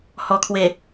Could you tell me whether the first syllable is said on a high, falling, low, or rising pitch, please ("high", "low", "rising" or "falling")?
low